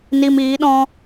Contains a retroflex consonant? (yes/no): no